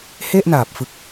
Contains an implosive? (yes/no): no